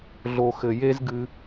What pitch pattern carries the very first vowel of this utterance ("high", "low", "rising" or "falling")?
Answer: low